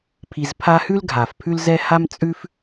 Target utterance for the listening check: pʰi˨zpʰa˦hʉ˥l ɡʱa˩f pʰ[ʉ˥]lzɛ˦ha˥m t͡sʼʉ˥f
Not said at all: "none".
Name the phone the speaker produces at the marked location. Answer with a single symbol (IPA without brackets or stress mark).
ʉ˦